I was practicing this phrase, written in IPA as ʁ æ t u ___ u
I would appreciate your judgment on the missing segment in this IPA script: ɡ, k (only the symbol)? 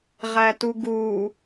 ɡ